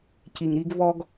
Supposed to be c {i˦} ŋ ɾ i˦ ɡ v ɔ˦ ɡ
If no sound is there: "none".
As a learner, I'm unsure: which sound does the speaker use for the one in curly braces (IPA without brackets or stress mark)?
i˨